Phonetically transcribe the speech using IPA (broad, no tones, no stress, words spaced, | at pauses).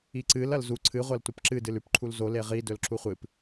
iǀɨl ɐlzu ǀʰɨ ʁʷɐltʷɐpǁɨ dɨlʉp ǃʰulzo leʁi dɵlǁuχʷɨp